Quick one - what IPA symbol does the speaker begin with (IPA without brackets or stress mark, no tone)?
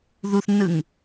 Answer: ð